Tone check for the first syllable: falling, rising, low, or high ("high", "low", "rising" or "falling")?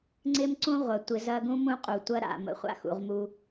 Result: high